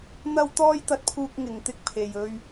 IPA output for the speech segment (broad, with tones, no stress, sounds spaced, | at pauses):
n̪ ɐ˥ w t̪ ɔː˥ j t̪ ɐ˧ t̚ pʰ uː˧ k̚ ŋ ɪ˨ ŋ t̪ ɪ˧ k̚ pʰ e˨ j ɵ˧ ɥ